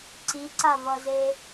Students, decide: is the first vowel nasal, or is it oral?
oral